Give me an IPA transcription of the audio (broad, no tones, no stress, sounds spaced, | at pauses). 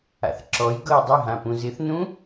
a̰ θ ǁ ɔ j ɡ ɤ j dˤ ɪ ɦ ã p ũ z ɪ θ n ũ